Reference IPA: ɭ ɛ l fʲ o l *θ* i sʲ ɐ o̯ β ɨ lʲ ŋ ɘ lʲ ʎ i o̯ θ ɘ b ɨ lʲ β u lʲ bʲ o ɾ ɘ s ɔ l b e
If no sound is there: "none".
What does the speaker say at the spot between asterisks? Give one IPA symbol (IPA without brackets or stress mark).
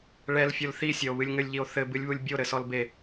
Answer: θ